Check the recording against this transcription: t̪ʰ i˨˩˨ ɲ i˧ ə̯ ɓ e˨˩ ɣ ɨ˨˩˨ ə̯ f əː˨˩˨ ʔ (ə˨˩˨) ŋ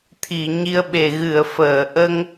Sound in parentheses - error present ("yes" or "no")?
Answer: yes